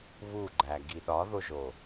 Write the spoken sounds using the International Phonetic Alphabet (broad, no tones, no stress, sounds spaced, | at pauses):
β u ɡ͡ǃ æ ɡ i ɗ ɒ ð o ʒ o